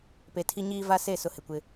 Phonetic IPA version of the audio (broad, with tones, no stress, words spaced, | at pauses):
pe˨tʰi˦ɲiː˦ va˦se˦˨ sʊ˦hɪ˨kʷɪ˦